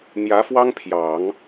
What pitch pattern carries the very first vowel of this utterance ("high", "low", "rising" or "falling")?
rising